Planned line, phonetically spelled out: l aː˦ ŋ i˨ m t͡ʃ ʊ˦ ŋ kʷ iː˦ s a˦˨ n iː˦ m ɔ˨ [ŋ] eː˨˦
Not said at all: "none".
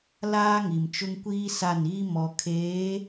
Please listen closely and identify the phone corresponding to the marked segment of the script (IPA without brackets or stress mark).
kʰ